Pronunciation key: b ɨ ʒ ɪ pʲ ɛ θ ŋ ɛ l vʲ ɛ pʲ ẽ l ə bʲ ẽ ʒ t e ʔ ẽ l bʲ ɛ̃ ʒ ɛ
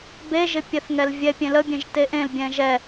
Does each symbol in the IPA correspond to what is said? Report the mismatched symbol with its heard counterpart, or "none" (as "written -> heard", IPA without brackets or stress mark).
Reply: ɨ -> e